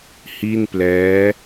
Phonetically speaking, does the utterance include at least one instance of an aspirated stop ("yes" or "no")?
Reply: no